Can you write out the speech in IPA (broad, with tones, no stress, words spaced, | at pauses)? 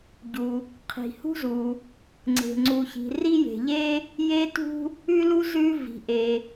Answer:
ɟu˩ | qʰi̤˩hṳ˥zu˩ | ŋ͡ǀe̤˩ŋ͡ǀu˩çi̤˩ ri˥je̤˩ʎe˥ | je˥tṳ˥ | ʉ˥lu˥ zʉ˥ vi̤˩ʔe˩